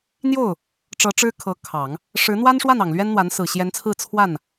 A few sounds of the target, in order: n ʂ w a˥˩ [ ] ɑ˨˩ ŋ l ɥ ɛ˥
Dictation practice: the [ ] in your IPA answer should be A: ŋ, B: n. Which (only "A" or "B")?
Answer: B